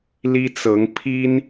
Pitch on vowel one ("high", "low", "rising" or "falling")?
high